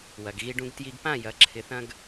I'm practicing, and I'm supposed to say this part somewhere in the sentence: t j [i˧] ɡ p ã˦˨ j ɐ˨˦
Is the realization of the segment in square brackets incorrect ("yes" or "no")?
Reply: no